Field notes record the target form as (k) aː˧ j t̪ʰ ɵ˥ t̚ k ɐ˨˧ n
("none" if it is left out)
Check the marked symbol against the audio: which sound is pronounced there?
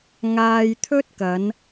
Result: ŋ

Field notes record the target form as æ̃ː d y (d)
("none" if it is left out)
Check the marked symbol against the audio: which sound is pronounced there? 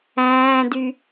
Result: none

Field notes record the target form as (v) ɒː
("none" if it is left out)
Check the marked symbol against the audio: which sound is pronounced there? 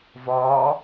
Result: v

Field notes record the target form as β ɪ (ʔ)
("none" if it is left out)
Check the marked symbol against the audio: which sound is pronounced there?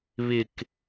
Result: k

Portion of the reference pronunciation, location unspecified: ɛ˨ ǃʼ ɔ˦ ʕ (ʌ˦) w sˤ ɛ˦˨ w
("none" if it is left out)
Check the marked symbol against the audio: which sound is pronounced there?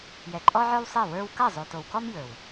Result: ə˞˦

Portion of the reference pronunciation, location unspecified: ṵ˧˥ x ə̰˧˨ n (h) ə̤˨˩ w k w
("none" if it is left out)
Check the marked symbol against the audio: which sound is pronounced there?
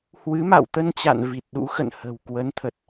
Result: h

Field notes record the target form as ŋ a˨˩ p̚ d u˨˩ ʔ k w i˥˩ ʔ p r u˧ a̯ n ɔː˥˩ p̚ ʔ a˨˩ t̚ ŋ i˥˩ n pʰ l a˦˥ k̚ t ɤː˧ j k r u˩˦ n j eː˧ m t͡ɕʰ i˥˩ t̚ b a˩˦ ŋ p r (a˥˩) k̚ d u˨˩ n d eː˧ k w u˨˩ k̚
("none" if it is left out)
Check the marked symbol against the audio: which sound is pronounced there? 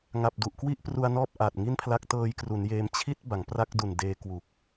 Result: a˥˩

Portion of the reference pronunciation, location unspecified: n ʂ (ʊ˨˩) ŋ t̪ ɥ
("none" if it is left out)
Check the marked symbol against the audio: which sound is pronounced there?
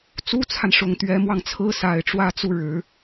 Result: ʊ˨˩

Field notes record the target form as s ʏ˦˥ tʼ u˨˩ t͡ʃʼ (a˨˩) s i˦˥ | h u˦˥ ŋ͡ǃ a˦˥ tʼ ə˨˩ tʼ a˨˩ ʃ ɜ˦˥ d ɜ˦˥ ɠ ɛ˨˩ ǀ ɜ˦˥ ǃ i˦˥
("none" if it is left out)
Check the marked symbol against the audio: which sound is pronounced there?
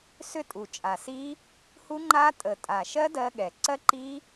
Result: a˨˩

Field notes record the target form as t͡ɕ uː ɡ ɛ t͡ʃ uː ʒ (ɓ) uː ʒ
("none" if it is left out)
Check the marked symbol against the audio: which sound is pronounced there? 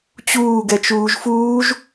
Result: f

